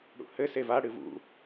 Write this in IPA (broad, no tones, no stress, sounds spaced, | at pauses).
ɽ ṵ h ɘ s e v a ɽ ɨ v ṵ